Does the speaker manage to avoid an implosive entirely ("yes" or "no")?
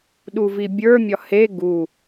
no